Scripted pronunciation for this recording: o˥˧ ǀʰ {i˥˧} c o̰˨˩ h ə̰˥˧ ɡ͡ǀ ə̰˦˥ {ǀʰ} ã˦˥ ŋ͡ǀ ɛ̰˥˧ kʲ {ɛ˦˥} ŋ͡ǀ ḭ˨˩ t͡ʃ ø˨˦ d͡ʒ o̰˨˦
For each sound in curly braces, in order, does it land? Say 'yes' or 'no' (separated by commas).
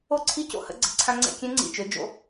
yes, yes, no